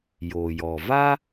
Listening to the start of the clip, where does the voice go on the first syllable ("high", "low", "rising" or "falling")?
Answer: low